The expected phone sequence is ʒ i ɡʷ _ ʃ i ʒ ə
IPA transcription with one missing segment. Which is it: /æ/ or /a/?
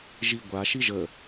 a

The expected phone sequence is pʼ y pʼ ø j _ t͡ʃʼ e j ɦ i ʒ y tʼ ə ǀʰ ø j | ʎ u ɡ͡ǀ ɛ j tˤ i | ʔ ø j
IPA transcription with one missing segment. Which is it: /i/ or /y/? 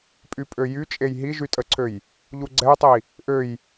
y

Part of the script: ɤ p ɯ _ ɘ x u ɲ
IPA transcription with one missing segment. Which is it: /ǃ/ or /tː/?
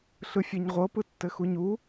tː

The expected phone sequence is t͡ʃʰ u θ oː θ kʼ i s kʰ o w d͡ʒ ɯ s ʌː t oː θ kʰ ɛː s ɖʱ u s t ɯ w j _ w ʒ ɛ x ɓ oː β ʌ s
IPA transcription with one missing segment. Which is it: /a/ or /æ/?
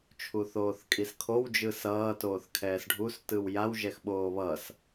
a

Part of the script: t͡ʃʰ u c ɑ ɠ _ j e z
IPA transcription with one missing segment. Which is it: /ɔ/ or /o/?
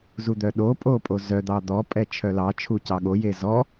o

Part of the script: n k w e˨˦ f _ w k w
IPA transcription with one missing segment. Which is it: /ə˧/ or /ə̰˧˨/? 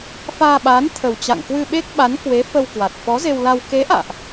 ə˧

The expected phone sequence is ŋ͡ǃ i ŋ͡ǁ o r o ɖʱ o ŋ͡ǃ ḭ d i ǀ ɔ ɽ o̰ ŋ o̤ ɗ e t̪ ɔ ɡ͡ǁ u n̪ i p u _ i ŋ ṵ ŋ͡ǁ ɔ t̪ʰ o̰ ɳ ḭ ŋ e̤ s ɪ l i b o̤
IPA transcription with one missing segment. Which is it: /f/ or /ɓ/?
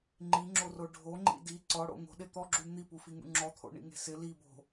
f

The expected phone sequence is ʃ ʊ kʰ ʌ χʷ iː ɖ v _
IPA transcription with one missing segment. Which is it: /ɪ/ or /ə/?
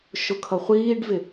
ɪ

